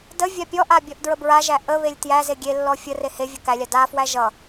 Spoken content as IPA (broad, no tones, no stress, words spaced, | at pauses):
də vʲapʲɔʔa bʲɔʔdɹəbɹaʒæ ʔə βelʲtjæze ɡʲelːɔ fʲə rehevʲʌ kælʲa dafwæ ʒʌ